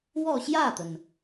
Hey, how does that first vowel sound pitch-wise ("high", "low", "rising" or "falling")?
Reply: falling